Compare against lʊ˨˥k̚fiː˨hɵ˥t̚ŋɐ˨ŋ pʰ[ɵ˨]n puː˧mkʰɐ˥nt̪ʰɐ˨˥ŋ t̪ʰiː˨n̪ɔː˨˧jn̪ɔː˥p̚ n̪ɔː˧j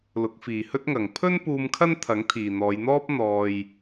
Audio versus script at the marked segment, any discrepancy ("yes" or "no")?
yes